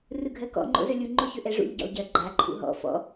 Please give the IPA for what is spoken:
r ɯ ɡʱ ɜ k ɔ̰ ŋ͡ǃ o̰ z ɵ lʲ u ŋ͡ǃ o ç ɵ ʔ ɛ ʐ ṵ ʎ ɟ o̰ lˠ ɟ ɜ ɡ͡ǃ a ǃʰ ṵ ɦ ɔ̰ f ɔ̰

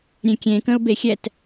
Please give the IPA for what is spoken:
ɾʲ ẽ kʲ ẽ k ə̃ ʊ̯ b e xʲ ɛ t

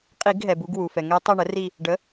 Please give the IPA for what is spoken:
qʼ i˧˩˧ ɡ ɦ ɛ˩ b u˦˨ ɡ w u˩ f ɛ˩ ŋ ɛ˧˥ tˤ u˦˨ ɳ ə˩˥ r i˦˨ | ɖ ə˩˥

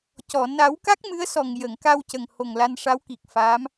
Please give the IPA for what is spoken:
c ɔ˨˩˨ n a˨˩˦ w k a˦˥ k̚ m ɨ˧˥ ə̯ s ɔ˨˩ ŋ j ə˨˩˨ ŋ k a˧ w c ə˨˩ ŋ h o˨˩ ŋ l a˧ n ʂ a˧˥ w k i˨˩ k̚ f aː˧˥ m

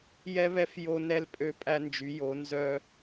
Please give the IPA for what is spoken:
j ɛ˦ β ɛ˦ f j o˦ n ɛ˦ l pʼ ø˦ pʼ æ˦ n d͡ʒ y˨˦ j o˨˦ n z œ˦

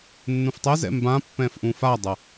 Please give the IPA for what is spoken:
nː ũ f tˤ ɛ z ɛ̰ m b ã pː ɛ̃ f ʔ ũ f a dˤ ʌ

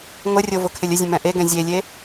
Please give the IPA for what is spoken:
ŋʷ ə rʲ o v ʊ kʰ ɪ lʲ ə zʲ ə̃ m ɛ̃ ʔ e ɡ ɛ̃ zʲ e lʲ e

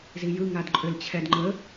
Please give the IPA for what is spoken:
z i j ɯ ŋ a d ǃʼ ʏ l t͡ɕʰ ɛ d ŋ͡ǃ ə

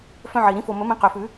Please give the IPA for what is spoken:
f œ̃˦ ʕ i˨˩ ɾ ĩ˨˦ f o˨˩ m ɵ˨˩˦ m ĩ˨˦ q ø˨˩ f ʉ˨˩˦

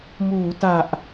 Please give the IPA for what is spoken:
m uː˩˦ t a˨˩ ʔ

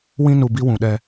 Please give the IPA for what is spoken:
w ĩ˦ n u˨ b i˦ w ũ˨ ɗ ɛ˦

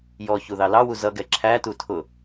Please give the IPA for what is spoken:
j ɔ ç u ð ɑ l ɑ w u z ʌ ɡ ɛ ǁʰ æ t u tʰ ʊ

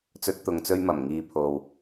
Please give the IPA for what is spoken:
t͡s ɵ˥ t̚ t̪ ʊ˧ ŋ t͡s ɵ˥ ɥ m ɐ˨˩ m ŋ iː˧ pʰ o˨ w

